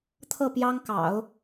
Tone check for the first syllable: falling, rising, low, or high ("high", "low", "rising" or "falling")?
falling